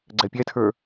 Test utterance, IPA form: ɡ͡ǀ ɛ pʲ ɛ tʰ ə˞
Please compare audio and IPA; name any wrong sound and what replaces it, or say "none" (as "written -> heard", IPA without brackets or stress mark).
none